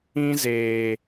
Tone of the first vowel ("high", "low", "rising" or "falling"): high